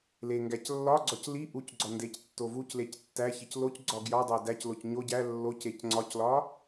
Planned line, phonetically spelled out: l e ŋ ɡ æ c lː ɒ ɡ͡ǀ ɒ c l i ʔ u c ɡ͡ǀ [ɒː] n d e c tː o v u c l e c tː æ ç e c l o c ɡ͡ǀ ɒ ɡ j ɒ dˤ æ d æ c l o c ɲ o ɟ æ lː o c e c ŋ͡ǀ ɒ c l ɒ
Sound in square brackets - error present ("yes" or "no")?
yes